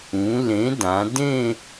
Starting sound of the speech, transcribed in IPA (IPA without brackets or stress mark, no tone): ũ